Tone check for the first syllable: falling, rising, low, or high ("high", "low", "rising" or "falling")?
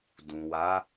low